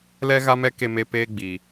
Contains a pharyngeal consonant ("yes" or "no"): no